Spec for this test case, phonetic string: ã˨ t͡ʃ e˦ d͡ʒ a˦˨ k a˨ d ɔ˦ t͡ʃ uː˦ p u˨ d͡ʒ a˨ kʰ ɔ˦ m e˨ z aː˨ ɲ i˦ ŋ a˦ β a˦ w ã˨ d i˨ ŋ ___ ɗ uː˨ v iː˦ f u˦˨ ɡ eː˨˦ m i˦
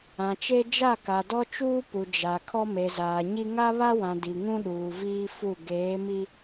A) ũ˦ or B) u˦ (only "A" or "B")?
A